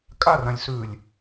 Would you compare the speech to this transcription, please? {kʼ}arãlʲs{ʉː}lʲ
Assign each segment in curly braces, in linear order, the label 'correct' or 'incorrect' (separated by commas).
correct, correct